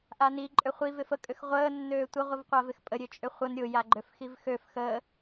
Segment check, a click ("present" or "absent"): present